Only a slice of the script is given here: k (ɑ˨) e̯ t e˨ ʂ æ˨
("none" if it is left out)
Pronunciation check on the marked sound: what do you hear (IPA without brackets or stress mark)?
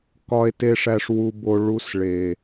ɒ˨